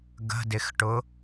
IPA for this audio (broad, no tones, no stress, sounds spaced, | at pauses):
ɡ ə̤ d ɪ x ʈ ʊ